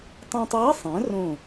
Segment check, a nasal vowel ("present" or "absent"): present